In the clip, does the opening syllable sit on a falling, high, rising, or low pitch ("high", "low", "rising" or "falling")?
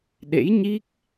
rising